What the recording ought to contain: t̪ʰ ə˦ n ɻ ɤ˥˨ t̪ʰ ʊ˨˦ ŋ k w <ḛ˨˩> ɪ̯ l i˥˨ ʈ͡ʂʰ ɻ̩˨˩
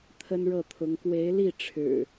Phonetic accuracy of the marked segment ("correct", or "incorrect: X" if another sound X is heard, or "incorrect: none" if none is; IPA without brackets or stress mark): incorrect: e˨˦